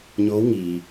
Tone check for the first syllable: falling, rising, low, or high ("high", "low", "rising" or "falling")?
rising